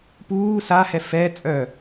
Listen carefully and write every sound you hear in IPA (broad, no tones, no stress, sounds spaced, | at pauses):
p uː s a h ɛ f ɛ t͡sʼ œ